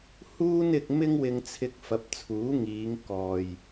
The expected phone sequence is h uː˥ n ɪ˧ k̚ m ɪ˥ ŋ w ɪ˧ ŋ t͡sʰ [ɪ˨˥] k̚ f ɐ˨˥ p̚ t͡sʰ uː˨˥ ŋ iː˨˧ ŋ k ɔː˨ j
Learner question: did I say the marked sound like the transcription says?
no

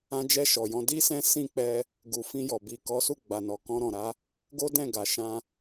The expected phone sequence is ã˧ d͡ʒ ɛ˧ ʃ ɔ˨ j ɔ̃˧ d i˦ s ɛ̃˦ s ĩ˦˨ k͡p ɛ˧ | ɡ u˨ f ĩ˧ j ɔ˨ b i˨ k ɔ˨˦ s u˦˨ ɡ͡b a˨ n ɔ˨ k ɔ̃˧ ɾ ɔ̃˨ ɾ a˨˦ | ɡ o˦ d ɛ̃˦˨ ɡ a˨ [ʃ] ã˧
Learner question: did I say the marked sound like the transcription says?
yes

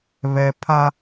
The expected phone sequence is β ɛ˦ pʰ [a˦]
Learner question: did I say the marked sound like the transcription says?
yes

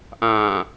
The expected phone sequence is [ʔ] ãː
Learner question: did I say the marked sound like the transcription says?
yes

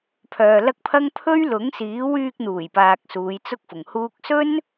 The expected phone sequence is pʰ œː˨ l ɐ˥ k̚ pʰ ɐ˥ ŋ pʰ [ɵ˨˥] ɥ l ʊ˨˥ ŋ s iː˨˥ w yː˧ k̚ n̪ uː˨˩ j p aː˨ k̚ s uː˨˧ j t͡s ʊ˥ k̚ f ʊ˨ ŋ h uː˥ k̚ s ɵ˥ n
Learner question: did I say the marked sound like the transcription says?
no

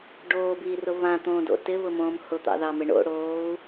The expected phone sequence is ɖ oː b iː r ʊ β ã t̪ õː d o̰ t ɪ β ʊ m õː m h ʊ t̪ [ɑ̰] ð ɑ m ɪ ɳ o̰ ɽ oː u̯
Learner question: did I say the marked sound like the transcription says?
yes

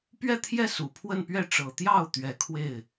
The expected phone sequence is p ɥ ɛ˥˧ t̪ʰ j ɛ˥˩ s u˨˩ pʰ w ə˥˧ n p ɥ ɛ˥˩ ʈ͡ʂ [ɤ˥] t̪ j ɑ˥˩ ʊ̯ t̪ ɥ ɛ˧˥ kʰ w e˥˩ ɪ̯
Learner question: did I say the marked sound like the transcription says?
no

